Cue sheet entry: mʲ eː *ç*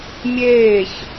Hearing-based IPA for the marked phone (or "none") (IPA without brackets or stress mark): ç